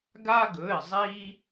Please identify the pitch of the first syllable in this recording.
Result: high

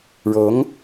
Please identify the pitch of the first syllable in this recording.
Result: rising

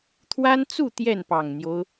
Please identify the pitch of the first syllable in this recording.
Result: high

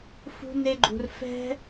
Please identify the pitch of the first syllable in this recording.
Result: high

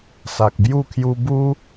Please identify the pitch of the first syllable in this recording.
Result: low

